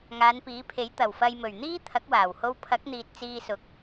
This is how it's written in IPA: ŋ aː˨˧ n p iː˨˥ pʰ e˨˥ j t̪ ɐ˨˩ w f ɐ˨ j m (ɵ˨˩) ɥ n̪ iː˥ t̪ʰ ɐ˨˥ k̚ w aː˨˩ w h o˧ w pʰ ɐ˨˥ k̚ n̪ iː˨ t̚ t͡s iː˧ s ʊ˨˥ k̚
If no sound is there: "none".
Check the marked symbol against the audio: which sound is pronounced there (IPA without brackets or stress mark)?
ɵ˨˩